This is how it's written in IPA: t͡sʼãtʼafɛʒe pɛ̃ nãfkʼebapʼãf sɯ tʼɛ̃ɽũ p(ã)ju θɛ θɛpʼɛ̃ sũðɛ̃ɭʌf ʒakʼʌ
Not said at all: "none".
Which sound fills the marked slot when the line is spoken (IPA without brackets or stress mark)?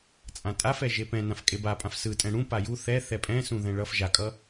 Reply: a